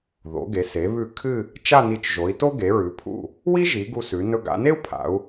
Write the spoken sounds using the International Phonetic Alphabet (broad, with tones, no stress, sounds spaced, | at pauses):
ð o̰˩˧ ɡ e˩˧ s e˩˧ β ʉ˧˩ kʰ ɨ˥˧ | t͡ʃ a˥˧ n i˧˩ t͡ʃ ʒ o˩˧ i̯ t o˥ ɡ e˩˧ ɹ ʉ˩˧ pʰ ṵ˧˩ | w i˥ ʒ i˩˧ ɡ u˧ s ʉ˩˧ n ɵ˧ ɡ a̰˩˧ n e˥ u̯ pʰ a̰˩˧ u̯